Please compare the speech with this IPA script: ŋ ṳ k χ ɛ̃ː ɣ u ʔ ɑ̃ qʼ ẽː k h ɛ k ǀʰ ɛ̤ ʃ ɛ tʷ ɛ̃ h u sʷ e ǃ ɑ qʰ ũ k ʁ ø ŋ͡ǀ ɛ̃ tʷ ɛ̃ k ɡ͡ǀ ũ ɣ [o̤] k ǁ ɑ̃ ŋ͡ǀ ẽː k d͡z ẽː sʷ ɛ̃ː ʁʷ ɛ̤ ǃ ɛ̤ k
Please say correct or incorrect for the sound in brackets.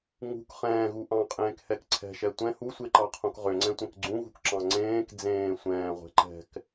incorrect